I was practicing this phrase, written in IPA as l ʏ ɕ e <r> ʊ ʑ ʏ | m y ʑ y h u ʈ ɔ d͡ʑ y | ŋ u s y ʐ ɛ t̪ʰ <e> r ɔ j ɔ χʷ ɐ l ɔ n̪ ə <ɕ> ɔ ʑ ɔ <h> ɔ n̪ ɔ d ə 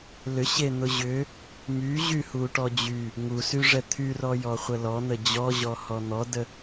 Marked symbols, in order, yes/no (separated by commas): no, no, no, yes